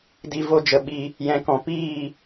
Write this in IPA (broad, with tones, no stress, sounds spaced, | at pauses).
d i˧ v o˧ d͡ʒ ə˨ ɓ i˧ | j ɛ̃˨ k ɔ̃˨ p iː˦˨